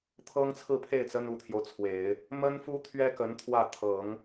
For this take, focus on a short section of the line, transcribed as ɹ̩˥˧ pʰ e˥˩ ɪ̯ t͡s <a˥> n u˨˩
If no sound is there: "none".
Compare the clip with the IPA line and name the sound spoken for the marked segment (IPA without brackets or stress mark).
ə˥